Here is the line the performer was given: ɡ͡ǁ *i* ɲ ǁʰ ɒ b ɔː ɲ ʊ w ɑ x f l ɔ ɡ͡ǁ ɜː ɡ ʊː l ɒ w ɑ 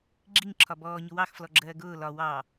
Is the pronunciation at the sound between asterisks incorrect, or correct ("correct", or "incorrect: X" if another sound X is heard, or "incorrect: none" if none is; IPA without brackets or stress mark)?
correct